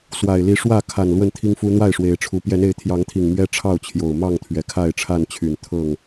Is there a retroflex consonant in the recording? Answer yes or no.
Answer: yes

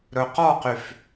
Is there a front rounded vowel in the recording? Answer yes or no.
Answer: yes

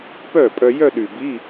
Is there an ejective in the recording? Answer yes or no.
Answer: yes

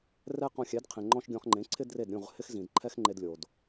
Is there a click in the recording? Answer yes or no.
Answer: yes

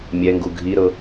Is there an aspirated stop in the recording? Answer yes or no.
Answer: no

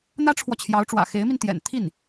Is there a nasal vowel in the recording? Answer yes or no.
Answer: no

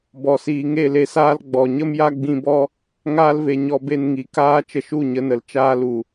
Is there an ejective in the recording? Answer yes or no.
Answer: no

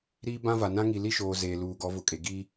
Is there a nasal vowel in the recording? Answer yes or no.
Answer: yes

